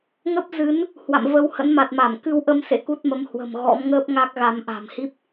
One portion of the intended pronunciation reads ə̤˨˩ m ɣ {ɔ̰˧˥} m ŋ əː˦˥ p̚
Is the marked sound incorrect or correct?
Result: correct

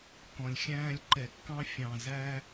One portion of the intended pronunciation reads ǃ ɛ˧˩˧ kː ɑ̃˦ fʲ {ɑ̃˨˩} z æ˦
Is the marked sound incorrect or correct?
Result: correct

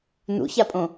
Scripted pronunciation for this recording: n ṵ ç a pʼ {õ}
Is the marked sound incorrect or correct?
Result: correct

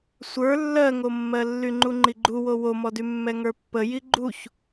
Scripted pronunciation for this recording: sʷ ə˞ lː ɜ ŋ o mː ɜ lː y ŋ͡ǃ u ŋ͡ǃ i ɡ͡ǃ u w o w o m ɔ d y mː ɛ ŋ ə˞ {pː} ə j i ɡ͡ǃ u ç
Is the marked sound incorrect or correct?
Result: correct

